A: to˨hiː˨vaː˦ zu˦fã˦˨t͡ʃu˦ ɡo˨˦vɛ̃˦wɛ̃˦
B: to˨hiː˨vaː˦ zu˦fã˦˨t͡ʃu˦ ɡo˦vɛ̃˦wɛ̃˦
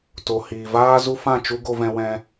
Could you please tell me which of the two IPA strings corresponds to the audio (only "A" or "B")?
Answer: B